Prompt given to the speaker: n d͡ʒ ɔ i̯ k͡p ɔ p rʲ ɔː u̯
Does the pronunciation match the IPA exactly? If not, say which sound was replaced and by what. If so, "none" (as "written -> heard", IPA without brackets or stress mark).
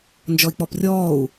none